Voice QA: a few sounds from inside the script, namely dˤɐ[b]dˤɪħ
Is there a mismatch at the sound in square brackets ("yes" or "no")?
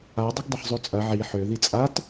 yes